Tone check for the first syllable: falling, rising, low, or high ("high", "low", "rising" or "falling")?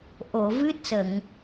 low